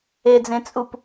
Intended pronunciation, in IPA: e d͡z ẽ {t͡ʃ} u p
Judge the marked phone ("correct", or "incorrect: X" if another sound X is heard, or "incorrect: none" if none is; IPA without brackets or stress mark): incorrect: t͡sʼ